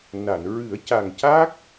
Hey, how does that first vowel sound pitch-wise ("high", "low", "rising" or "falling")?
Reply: low